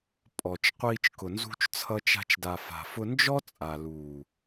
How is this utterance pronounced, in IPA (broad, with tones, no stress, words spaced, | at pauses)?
pʼɔ˨t͡ʃ qʷiː˧t͡ʃkʊ˨ nzṳ˧t͡ʃt͡sʰʌ˧t͡ʃa̤˧t͡ʃda˨ fa̤˨fʊ˧nd͡ʒɔ˦ t͡sʼa˨luː˨